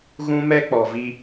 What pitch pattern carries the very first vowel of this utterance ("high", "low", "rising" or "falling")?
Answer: high